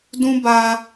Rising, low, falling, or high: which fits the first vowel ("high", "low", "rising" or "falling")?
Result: high